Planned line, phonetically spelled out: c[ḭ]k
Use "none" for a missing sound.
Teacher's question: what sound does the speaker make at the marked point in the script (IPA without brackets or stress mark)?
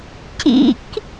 ḭ